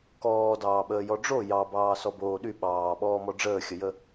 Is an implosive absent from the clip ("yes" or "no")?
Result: no